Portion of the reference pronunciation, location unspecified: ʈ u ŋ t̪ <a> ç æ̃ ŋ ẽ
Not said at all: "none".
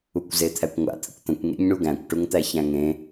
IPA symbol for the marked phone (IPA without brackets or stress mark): æ